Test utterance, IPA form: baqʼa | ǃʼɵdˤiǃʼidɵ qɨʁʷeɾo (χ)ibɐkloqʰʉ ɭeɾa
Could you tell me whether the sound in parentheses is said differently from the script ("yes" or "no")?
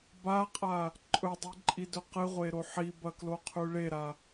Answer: yes